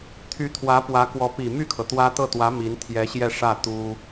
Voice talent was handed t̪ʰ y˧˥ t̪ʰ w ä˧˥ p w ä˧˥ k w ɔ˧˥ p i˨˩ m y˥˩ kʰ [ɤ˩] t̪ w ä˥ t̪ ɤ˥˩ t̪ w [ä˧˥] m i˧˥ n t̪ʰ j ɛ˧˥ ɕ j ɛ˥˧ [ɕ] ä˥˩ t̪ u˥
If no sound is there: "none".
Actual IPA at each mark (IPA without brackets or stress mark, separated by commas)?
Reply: ɤ˩, ä˧˥, ʂ